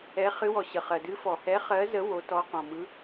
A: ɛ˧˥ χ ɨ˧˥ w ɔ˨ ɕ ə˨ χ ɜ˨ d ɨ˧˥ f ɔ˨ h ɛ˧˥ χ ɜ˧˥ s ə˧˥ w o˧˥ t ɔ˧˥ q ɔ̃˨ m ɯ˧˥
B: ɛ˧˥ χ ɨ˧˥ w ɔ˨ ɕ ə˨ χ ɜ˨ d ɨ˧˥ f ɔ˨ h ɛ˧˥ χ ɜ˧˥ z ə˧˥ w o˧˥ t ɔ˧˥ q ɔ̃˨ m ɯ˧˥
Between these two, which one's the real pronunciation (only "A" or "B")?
B